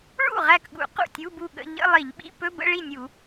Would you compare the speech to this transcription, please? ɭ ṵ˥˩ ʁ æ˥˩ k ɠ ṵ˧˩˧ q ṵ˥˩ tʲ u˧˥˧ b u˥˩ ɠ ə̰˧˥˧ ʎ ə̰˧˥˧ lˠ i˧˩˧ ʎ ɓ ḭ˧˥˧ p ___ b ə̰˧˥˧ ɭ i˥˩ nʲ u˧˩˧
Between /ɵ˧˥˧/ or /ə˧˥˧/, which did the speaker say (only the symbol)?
ɵ˧˥˧